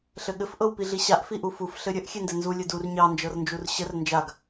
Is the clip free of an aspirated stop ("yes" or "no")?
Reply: yes